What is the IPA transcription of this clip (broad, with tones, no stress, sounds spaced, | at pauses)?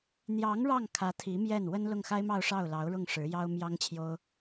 n̪ j ɑ˧˥ ŋ ɻ ɑ˥˩ ŋ kʰ ä˧˥ t̪ʰ i˧˥ m j ɛ˥˩ n w ə˥ n l ʊ˥˩ ŋ x a˥ ɪ̯ m ɑ˥˧ ʊ̯ ʂ ɑ˥˩ ʊ̯ l ɑ˧˥ ʊ̯ ɻ ʊ˥˩ ŋ ʂ ɻ̩˧˥ j ɑ˥ ʊ̯ m j ɑ˥ ŋ t͡ɕʰ j o˥ ʊ̯